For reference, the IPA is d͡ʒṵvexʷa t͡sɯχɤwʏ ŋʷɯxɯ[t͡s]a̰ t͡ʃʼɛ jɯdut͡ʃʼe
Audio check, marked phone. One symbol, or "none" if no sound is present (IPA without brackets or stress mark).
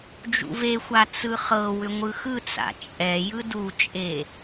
t͡s